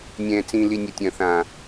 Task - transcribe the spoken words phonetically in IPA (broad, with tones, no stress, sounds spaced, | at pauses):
nʲ ɛ̃ː˨ t͡s ĩː˨ l i˨ nʲ ɐ˨ tʲ ɐ̃˨ θ ã˨